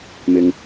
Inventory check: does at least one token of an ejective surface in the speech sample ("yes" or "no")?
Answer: no